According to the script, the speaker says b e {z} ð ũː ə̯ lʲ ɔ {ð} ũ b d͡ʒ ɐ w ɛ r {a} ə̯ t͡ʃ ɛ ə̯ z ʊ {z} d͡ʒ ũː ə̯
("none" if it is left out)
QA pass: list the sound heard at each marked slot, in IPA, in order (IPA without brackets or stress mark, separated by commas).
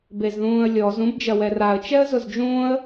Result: z, z, a, z